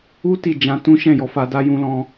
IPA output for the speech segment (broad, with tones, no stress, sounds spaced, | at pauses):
u˦ t i˦˨ d͡ʒ ã˧ t ũ˦ ʃ ɛ̃˦˨ j ɔ˧ f a˧ d a˦ j ũ˦ l ɔ̃˦